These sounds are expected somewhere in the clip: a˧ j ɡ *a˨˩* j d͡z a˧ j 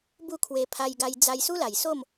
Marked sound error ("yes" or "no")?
yes